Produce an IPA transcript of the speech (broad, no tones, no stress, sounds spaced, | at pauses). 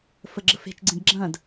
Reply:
f ə ɡ͡ǁ ə f e̤ t͡ʃ ɡ͡ǀ ẽ d ɡ͡ǁ ɐ̃ d